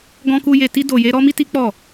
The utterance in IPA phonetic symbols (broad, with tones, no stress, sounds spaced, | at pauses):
ɡ ɔ̃˦ k u˦ j e˧ t i˦ d o˧ j e˦ ɾ ɔ˦ m i˦ t i˦ k͡p ɔ˦˨